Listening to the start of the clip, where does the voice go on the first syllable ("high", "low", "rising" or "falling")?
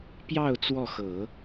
falling